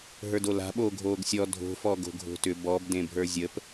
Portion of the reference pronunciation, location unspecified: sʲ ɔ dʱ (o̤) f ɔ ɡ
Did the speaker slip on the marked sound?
no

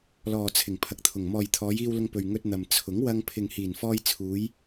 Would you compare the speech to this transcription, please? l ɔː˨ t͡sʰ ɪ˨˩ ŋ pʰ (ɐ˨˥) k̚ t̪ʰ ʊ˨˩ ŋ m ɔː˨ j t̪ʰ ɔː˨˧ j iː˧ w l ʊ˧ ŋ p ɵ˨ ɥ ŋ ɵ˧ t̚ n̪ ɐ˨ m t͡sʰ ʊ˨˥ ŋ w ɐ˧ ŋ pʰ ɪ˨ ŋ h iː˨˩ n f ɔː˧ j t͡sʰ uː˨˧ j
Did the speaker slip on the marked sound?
no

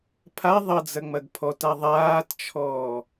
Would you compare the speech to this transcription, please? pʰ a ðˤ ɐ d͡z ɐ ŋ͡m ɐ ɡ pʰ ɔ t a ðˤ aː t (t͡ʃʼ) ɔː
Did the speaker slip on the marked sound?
yes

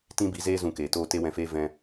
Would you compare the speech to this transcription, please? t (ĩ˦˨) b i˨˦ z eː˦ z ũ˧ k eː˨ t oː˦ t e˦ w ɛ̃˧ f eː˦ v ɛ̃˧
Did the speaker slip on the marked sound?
yes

